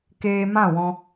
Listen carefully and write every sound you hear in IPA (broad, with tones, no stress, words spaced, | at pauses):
keː˧mã˦˨wɔ̃˧